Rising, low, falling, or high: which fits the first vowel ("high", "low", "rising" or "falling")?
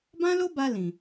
high